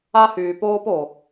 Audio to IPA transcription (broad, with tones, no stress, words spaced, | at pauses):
a˦hyː˨ poː˦po˨